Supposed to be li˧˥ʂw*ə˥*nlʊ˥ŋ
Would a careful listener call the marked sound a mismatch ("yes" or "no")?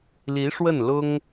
yes